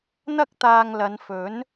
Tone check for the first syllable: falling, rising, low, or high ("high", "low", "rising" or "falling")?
high